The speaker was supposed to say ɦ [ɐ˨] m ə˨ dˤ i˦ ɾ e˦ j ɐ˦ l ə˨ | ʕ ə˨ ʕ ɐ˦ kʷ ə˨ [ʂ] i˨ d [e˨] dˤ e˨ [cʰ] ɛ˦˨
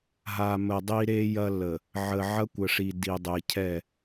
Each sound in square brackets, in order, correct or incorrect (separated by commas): incorrect, correct, incorrect, correct